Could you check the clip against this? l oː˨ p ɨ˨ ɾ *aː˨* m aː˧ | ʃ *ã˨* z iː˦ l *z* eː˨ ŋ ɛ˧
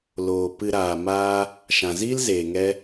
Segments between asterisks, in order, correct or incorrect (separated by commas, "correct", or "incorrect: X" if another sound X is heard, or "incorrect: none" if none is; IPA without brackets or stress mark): correct, correct, correct